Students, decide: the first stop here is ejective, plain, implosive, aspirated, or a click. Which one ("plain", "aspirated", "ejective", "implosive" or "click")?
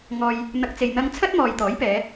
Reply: plain